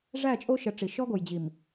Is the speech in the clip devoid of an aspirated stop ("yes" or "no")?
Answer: yes